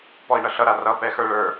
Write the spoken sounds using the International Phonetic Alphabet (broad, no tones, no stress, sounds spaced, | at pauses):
p ɔ i̯ ɳ ʌ ɬ ʌ ɾ a r ʌ p ɛ x ə˞ ɭ ə˞